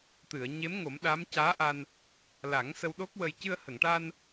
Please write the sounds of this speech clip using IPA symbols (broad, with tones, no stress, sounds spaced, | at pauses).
t̪ ɨ˨˩˨ ə̯ ɲ e˧˥ m ŋ o˨˩˦ m ɗ aː˧˥ m c aː˧˥ ʔ a˧ n | l a˨˩˦ ŋ s ə˧ w ɗ o˦˥ k̚ w ə˧ j c ɨ˧ ə̯ h ə˨˩˨ ŋ ʈ a˧ n